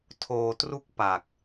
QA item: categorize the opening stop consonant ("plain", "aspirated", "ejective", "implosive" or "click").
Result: aspirated